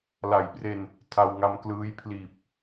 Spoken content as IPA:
l a˨˩ j p r e˧ n | tʰ a˧ w ŋ a˧ m k l ɯː˦˥ j pʰ l iː˨˩ p̚

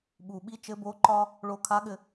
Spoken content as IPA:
ɓ u˩ ɓ i˧˥ t͡ʃ ɘ˧˥ b o˧˥ ǃ ɒ˥ | ɭ o˧ kʰ a˧˥ ɠ ɘ˧

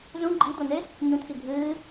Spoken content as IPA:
z ũ ɡ͡ǃ i d̪ o n e | ɲ ũ t̪ʰ i dʱ ɨː

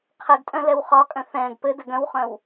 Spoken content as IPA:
qʰ ɘ ɡ tʼ œ̃ l ɛ w χ ɒ kʼ œ̃ θ ɛ̃ː ɡ p ɘ d ɘ ɡ œ̃ w χ œ̃ w

